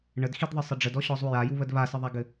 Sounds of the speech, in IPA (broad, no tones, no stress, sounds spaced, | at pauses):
ɳ ə d x i d ðˤ ɘ sˤ ə ɖ͡ʐ ə d ɔ ɕ ɔ zˤ u j a j u β ə d β a s ə ðˤ a ɡ ɘ